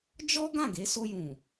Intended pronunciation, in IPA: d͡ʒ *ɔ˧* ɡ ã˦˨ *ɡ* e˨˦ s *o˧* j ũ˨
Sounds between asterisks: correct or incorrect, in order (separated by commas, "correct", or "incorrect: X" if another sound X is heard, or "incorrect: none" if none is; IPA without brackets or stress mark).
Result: incorrect: ɔ˦, correct, correct